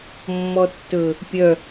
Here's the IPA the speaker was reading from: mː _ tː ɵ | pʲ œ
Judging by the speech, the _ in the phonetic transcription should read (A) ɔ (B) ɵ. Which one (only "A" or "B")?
A